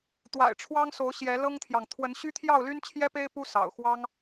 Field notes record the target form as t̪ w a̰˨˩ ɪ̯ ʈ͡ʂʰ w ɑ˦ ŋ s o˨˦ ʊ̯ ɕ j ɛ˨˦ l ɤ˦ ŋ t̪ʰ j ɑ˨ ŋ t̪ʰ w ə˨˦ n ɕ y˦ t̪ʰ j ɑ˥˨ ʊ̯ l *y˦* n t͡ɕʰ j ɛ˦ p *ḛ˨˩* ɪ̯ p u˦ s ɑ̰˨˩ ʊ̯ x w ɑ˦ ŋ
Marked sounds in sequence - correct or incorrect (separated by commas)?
correct, incorrect